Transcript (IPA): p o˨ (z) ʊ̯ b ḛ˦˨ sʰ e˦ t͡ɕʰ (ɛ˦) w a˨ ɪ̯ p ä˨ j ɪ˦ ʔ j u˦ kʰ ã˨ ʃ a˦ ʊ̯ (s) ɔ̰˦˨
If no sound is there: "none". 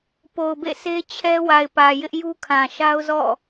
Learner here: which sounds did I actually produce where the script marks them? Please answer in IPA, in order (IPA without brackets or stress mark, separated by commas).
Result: none, ɛ˦, z